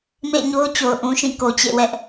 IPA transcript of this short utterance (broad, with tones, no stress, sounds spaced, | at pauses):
m ḛ˦˨ ɪ̯ ɲ o˦ ʊ̯ t͡ɕ o˨ ʊ̯ ʔ ũ˨ ʃ ĩ˦˨ k o˨ t͡ɕ ḛ˦˨ w ɛ˦ ʔ